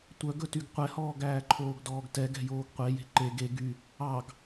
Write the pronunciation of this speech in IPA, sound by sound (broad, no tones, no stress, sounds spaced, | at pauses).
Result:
tʷ œ ɡ ɵ t y ɡ qʷ ɛ h ɔː ɡ æː ǃʰ oː ɡ d ɔː ɡ t ɛ ɡ ɛ̤ j oː ɡ qʷ e j e̤ ǃ e ɡ e ɡ y | ɑ ɡ